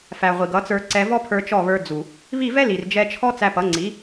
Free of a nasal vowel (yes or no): yes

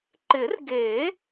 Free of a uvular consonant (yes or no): yes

